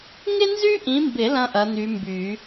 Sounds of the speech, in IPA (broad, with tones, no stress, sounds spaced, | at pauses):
ŋ ɪ˥ n z y˥ ʔ ĩ˨˦ m b ɪ˨˩˦ l ɐ̃˥ ʔ ɐ˨˦ n̪ y˨˦ m b y˨˩˦